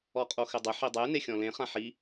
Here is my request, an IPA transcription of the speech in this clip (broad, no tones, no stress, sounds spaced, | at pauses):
ɔ qʼ o x ɪ dˤ ɪ ħ i dˤ e n e xʲ ɔ̃ l ẽ χ ã ħ i